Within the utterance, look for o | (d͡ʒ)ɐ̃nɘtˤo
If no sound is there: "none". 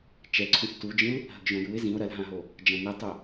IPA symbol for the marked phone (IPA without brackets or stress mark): d͡ʒ